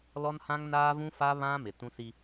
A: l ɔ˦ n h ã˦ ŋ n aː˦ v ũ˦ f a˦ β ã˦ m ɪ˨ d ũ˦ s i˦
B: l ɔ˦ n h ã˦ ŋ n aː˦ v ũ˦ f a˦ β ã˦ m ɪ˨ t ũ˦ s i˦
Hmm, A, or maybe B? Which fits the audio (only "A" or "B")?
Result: B